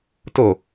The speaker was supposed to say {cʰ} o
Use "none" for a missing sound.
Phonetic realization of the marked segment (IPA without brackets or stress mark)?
t